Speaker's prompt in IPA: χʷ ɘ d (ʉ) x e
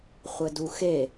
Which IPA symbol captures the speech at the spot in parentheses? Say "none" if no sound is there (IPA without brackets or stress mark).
u